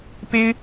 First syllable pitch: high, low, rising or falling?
high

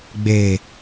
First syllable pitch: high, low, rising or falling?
low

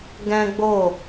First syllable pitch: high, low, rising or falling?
high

